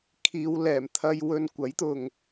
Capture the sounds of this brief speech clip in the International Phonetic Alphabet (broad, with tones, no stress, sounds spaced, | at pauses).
kʰ iː˨˧ w l ɛː˨˩ m t̪ʰ ɐ˧ j w ɵ˧ n kʷ ɐ˨˥ j t̪ ʊ˨ ŋ